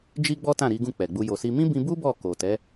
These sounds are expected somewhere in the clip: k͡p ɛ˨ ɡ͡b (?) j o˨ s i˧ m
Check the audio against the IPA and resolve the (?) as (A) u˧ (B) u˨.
A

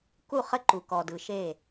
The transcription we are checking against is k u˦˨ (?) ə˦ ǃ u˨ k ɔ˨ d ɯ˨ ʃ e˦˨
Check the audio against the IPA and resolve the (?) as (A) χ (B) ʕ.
A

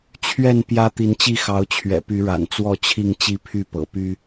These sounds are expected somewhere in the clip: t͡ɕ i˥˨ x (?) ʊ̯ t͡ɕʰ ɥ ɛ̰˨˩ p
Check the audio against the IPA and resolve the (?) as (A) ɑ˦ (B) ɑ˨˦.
B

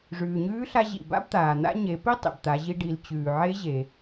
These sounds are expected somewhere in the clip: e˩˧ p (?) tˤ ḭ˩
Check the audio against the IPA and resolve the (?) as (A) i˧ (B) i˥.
B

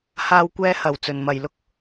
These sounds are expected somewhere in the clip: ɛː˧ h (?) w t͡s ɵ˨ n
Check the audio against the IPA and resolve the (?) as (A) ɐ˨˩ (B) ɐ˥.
A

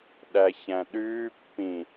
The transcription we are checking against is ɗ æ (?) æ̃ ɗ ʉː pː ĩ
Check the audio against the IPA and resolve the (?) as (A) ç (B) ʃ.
A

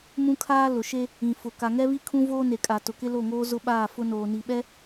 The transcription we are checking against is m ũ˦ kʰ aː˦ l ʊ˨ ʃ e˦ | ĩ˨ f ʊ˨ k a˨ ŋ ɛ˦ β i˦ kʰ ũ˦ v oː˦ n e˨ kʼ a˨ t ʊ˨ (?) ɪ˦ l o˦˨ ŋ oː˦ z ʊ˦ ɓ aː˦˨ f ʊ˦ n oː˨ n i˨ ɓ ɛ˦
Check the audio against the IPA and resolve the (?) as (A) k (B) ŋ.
A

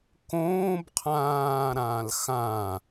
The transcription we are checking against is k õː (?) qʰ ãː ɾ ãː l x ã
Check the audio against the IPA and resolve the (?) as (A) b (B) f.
A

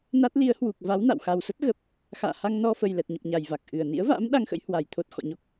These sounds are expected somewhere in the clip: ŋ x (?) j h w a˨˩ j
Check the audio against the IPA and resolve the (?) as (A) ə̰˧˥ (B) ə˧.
A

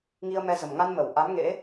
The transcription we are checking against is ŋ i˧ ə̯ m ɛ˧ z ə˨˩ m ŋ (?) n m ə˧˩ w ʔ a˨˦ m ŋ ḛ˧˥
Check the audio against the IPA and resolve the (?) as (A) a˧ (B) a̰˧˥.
A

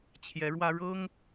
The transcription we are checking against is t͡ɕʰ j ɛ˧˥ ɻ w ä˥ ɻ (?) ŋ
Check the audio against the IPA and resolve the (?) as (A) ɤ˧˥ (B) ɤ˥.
B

